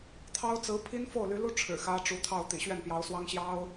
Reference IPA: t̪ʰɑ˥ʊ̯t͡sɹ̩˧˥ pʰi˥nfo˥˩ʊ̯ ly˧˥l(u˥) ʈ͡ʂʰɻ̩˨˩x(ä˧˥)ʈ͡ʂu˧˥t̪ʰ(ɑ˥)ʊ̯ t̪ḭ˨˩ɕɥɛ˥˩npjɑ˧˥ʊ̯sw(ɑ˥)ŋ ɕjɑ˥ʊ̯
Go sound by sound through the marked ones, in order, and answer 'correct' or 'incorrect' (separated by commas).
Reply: correct, incorrect, incorrect, correct